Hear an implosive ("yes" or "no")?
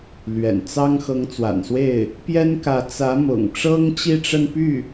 no